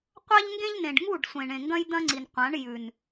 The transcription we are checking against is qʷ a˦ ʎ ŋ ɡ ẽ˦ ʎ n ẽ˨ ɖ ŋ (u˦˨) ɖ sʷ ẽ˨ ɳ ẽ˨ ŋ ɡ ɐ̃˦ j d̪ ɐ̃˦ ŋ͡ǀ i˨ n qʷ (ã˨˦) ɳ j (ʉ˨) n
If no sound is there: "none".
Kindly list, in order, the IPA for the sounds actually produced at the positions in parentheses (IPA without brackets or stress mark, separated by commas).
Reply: u˦˨, ã˨˦, ʉ˨